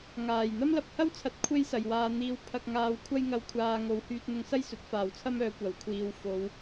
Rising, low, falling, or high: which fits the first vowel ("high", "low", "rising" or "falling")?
low